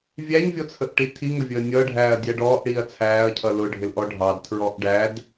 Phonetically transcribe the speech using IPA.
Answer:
vʲæɲvʲɔt͡sʰəʔʈi tʰiŋəvʲəː nʲʌɖʱæːɐ̯dʲæ ɖɔːʔɽiːɐ̯ t͡sʰæːɐ̯cʰʌ lʊɖʱɪlʔɔ ɖʱɑdtʰɹɔʔ ɖæd

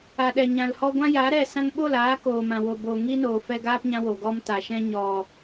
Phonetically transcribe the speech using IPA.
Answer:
a˨ɗɛ˨ ɲã˨lhɔ˧ ɡʷã˦ja˨˦ ɾɛ˦˨ sã˧ŋɓo˦˨laː˨˦ koː˨ mã˨wo˨boː˨ ŋiː˦noː˨fɛ˧ ɡaː˦pɲã˧ wo˨ɡɔ˦mta˨ ʃɛ̃˧ɲɔ˨

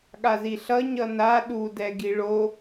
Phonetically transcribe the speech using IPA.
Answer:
ɠaziɬʌ ɲʌna ɗu dɛɡiɭo

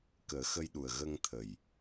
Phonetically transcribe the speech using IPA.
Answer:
kəː˨˩˦xə˧jɗu˨˩ə̯ ɣə˧ŋt̪ʰə˨˩j

